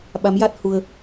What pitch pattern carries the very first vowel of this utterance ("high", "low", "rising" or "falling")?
rising